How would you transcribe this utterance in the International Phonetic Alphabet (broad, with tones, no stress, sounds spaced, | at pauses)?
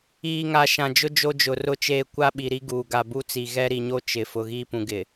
iː˨ ŋ a˨ ʃ ã˨ d͡ʒ ʊ˦ d͡ʒ o˦ d͡ʒ ʊ˨ r ʊ˦ t͡ʃ eː˦ kʷ a˦ ɓ i˨ ɾ i˦ ɡ uː˨ ɡ a˨ b u˦ t͡s i˨ ɣ ɛ˦ ɾ i˨ ɲ o˦ t͡ʃ ɪ˨ f ʊ˨ ɣ iː˦ p ũ˨ ɡ ɪ˨